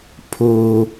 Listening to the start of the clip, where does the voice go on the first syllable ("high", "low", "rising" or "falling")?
high